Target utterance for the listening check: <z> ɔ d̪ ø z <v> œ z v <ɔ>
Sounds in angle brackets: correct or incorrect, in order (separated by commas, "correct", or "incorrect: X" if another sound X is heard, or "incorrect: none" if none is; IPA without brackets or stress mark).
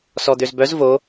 incorrect: s, incorrect: b, incorrect: o